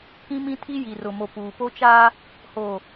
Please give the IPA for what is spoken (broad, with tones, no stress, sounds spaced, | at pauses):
k ĩ˦ m ĩ˦ tʰ i˦ j i˨ r ʊ˨ m o˨ p uː˨ p o˦ t͡ʃ aː˦ | h oː˨